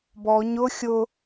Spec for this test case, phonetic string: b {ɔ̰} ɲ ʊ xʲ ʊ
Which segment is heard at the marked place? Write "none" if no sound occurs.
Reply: ɔ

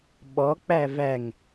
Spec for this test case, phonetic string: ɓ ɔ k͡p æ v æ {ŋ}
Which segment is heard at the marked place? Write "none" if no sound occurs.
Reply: ŋ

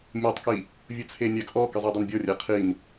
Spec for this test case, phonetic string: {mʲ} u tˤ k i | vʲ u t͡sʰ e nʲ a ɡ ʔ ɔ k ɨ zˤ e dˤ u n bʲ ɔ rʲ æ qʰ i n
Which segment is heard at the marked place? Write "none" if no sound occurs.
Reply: mʲ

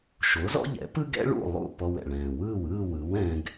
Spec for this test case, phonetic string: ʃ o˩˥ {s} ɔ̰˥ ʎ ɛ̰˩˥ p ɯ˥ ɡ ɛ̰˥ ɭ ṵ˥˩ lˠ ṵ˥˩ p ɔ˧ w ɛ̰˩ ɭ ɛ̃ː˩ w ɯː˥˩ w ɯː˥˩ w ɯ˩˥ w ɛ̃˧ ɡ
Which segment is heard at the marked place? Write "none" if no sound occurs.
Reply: z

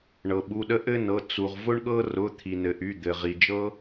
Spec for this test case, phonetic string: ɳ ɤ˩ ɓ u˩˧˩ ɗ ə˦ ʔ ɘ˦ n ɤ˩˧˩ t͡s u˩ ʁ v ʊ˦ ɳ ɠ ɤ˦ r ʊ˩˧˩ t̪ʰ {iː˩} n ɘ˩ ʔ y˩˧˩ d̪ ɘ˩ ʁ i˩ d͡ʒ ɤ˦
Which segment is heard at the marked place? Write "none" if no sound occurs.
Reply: i˩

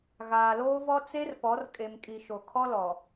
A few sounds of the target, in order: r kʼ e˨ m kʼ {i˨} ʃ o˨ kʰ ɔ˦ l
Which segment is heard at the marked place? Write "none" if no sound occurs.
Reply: i˨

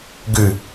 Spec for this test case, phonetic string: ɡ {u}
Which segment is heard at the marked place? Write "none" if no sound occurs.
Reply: ʉ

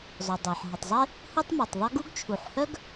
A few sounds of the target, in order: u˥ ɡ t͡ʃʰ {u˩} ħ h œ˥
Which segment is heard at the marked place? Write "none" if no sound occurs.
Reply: u˩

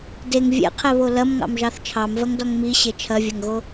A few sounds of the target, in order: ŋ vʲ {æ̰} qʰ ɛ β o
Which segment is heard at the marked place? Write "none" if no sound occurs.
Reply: ɛ̰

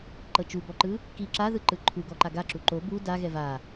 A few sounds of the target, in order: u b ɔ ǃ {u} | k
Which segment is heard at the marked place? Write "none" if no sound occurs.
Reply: ɯ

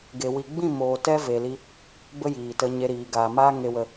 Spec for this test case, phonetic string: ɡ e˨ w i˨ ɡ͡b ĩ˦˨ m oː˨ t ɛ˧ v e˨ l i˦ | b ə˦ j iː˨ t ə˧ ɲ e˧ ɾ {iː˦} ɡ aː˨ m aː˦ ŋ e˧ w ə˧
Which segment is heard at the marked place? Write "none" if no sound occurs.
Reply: iː˨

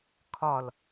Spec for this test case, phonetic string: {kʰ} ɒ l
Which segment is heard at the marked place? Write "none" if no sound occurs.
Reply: kʰ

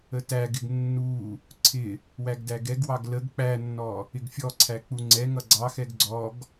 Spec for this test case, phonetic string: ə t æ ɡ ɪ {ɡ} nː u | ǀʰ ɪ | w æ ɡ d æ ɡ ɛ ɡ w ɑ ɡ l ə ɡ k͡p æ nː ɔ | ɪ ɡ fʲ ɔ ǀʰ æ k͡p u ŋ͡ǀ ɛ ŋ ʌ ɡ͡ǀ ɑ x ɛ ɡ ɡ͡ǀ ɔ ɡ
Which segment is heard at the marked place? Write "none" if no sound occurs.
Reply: ɡ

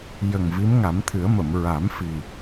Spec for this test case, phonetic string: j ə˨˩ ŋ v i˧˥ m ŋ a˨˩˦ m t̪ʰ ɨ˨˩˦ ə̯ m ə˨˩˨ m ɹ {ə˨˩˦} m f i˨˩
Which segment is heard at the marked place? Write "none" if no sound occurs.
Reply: a˨˩˦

